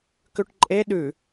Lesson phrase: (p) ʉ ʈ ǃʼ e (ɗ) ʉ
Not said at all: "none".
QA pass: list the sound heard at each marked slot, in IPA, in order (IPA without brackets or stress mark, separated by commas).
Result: k, ɗ